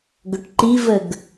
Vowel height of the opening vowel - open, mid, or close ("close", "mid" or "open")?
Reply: mid